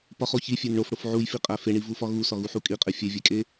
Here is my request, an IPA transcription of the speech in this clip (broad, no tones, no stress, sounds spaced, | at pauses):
p ɒ χ o ç i fʲ e n ɳ o f ɽ o f ʕ u j f i qʼ æ f e ɳ i v u f ɒ ɣ u s ɒ ɣ u ħ u kʼ i qʼ e fʲ e vʲ e kʼ e